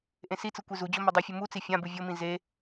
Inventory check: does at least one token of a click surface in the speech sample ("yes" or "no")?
no